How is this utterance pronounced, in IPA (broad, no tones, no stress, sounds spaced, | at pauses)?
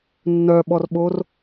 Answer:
nː œ ɓ ɔ r ɓ o r